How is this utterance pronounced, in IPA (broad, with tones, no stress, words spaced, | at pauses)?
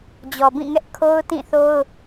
d͡ʑɔ˨bĩ˦˨ŋɛ˦ʔ kʰo˦ʊ̯tĩ˦˨θo˦ʊ̯